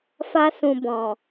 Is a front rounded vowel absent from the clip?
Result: yes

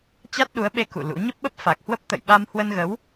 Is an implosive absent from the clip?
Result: no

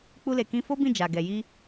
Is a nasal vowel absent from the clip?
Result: no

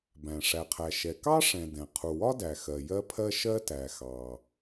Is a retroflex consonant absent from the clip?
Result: no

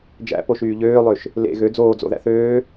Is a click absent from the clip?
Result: yes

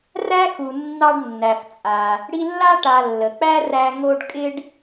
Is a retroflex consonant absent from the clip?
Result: no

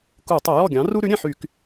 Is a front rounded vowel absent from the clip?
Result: no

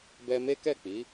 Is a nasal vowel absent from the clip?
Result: yes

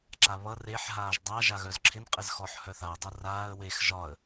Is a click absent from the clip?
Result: no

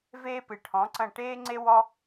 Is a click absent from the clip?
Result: no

